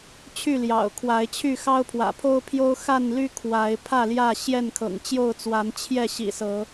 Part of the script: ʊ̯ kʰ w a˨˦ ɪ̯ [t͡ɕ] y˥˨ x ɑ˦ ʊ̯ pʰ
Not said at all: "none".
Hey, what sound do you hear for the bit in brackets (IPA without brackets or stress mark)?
t͡ɕʰ